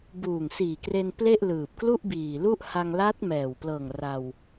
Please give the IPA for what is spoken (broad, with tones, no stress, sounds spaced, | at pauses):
b uː˨˩ ŋ s iː˨˩ k r e˧ n p l e˥˩ ʔ l ɯː˨˩ p̚ k l u˥˩ ʔ b iː˨˩ l u˥˩ ʔ h a˧ ŋ l a˦˥ t̚ m ɛː˨˩ w p l ɤː˨˩ ŋ r a˧ w